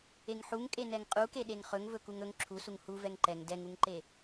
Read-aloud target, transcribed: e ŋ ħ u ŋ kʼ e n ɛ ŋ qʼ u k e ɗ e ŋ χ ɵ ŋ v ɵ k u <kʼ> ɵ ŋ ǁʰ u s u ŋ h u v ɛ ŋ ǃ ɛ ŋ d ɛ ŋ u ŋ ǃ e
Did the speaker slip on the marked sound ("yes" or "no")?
yes